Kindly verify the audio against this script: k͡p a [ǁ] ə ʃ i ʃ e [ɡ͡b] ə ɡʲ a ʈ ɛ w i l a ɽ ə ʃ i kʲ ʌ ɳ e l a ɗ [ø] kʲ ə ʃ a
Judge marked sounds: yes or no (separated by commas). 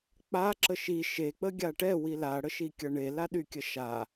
yes, no, no